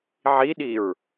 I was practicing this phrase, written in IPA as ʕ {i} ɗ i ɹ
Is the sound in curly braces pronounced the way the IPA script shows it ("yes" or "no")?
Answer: yes